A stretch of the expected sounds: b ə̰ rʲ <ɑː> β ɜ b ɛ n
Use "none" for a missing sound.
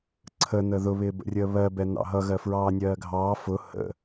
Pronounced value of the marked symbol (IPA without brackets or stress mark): əː